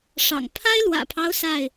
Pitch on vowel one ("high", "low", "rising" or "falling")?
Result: low